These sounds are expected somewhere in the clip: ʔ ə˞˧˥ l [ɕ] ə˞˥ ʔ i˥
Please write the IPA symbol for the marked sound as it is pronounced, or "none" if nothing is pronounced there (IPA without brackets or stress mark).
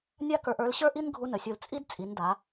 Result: ɕ